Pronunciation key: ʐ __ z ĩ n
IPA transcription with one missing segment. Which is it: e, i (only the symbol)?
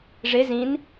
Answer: e